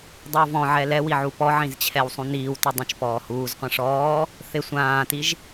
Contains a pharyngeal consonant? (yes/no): yes